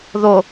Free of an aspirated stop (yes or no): yes